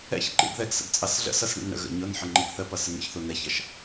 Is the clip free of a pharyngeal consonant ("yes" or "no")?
no